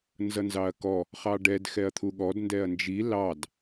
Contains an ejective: no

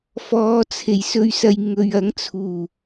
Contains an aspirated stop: yes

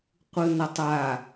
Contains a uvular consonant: yes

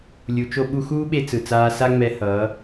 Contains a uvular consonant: no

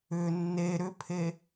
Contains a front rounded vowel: yes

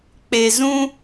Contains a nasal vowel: yes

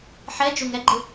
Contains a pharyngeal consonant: yes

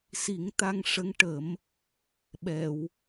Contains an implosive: yes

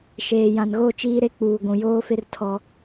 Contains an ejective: no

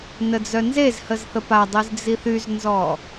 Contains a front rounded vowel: yes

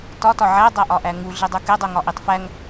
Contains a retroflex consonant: no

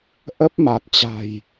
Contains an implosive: no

